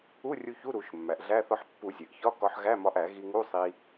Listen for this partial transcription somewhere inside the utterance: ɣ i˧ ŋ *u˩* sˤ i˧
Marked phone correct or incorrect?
incorrect